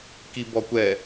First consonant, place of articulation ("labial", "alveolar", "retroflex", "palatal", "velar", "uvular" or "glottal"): velar